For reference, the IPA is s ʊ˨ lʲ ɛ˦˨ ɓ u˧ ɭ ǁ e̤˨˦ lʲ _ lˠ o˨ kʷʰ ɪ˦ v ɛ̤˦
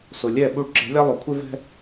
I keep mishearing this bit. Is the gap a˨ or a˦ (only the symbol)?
a˦